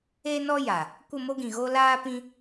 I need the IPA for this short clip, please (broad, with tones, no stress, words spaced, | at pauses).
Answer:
e˦nɔ˦ ja˨ | kʷə˦˨mo˦ɡĩ˨ɣo˦ laː˦pĩ˦